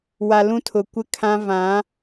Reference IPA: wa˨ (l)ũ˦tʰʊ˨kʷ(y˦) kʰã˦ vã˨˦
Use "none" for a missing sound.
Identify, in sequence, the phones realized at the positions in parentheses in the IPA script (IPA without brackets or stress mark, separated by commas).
l, ɪ˦